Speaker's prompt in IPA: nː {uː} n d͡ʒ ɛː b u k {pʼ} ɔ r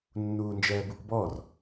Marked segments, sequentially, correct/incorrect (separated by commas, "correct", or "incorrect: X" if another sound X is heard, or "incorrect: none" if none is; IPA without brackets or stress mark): correct, incorrect: b